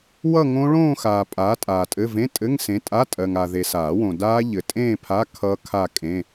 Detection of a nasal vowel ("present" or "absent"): present